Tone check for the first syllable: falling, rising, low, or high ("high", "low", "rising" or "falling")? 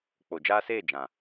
low